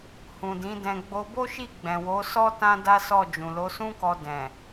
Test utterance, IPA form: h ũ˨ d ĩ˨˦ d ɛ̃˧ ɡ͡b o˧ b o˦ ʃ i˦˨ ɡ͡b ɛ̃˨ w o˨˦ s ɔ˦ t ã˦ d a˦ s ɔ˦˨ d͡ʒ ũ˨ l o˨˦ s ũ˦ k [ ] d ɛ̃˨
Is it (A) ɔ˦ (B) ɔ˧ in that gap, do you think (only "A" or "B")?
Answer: B